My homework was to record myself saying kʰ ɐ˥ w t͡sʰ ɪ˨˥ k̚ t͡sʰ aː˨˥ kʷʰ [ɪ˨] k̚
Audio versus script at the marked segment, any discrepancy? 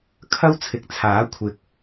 no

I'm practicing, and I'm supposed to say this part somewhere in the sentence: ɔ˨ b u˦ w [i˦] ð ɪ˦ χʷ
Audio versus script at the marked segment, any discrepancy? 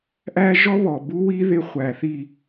no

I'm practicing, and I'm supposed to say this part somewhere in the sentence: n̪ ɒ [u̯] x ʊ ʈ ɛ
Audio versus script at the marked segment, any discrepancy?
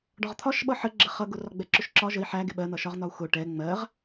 no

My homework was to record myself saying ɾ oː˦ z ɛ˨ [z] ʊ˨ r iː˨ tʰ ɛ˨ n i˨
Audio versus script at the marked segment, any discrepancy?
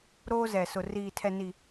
yes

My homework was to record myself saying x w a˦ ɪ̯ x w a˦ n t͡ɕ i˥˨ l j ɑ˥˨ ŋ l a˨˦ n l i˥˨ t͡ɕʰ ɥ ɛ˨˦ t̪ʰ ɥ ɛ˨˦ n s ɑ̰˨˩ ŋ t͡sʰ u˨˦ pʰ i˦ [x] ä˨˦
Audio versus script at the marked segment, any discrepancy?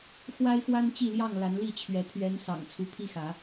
no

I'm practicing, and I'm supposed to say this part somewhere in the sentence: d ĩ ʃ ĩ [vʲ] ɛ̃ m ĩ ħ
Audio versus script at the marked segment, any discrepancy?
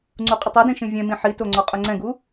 no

